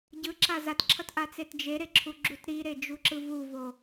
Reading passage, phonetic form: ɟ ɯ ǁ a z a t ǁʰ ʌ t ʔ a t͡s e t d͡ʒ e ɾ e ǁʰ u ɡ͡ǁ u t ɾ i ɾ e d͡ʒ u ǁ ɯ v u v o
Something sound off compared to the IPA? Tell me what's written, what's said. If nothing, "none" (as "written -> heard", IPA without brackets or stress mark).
none